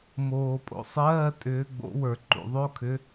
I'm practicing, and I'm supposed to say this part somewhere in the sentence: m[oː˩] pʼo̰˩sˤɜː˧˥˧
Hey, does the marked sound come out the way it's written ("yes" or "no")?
yes